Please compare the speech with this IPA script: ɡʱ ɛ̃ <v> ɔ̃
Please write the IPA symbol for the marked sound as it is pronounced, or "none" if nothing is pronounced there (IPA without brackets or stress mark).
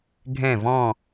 v